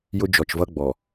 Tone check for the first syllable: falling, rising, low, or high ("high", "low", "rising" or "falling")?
high